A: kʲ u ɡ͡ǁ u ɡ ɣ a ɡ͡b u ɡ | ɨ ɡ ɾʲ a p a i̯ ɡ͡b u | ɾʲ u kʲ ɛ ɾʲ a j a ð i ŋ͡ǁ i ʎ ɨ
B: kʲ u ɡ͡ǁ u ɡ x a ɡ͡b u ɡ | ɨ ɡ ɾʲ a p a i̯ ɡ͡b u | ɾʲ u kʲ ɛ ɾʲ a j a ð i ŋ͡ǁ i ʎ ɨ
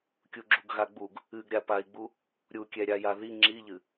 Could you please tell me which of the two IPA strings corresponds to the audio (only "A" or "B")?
A